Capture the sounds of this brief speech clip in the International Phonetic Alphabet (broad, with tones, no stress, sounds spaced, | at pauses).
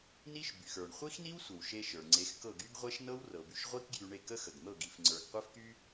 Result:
n i˥ ʃ b y˩ x ə˞˩ ɳ χʷ i˥ x n i˥ w sʷ ə˩ w ʃ e˧ ʃ ə˞˩ ŋ͡ǀ e˩˥ x k ɤ˥˩ ɡ y˥ ɡ ʁʷ e˥ ʃ n ɤ˥ w r ɤ˩ b y˧ ʃ ʁʷ i˥ k ɡ j y˧ ɳ e˥˩ k ə˥ x ə˩ ɡ n̪ ɤ˥˩ ɡ i˧ f ŋ͡ǀ ə˞˧ ɡ qʷ e˥ f k y˥